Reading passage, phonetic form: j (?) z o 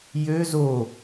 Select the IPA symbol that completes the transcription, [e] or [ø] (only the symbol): ø